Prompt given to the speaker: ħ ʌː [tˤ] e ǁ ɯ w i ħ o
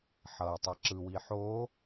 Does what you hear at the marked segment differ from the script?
no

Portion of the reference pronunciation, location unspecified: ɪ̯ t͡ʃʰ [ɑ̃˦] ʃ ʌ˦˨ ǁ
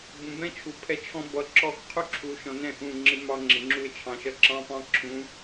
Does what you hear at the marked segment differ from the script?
yes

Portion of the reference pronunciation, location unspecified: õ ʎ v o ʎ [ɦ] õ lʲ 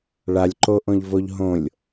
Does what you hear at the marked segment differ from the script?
no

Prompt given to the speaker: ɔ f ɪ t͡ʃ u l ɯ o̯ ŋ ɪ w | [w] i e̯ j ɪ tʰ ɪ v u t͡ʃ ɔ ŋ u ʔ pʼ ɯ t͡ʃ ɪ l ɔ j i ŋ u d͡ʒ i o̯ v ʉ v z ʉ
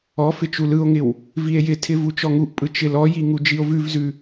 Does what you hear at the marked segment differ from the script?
yes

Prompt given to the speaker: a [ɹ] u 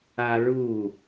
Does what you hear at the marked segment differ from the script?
no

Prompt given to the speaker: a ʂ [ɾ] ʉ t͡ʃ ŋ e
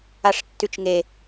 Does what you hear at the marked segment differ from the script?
yes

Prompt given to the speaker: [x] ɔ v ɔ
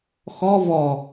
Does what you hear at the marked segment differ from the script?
no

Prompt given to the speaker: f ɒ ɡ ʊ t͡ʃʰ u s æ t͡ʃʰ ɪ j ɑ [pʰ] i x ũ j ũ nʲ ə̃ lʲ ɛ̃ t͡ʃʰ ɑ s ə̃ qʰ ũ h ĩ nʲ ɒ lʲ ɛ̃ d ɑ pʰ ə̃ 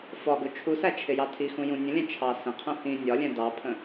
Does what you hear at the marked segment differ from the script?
yes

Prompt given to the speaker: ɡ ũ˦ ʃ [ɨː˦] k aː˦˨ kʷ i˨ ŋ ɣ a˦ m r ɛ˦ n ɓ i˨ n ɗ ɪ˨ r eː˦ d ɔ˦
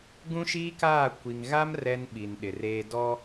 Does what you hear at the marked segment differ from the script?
yes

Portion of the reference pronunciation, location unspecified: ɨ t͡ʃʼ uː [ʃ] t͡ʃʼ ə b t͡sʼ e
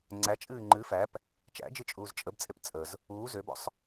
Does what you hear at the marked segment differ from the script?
yes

